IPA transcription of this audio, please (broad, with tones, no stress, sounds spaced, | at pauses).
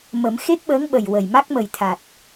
m ə˨˩˦ m x e˦˥ k̚ ɓ əː˧˥ ŋ ɓ ə˨˩ j w ə˨˩ j m a˦˥ k̚ m ə˨˩ j t̪ʰ a˨˩ t̚